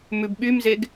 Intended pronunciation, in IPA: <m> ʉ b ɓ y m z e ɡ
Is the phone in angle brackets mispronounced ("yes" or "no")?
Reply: no